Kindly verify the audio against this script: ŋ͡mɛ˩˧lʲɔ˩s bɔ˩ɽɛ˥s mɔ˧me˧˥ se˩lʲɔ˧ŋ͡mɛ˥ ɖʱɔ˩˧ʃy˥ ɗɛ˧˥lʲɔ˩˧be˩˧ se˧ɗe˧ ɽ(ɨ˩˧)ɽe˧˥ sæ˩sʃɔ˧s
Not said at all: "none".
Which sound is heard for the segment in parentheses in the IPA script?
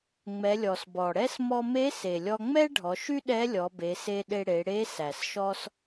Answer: e˩˧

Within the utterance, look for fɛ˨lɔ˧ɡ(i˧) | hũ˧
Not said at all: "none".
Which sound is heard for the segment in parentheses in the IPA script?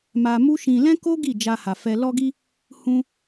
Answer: i˧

